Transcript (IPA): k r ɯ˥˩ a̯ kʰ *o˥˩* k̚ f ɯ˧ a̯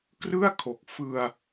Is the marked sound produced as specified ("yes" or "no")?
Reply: no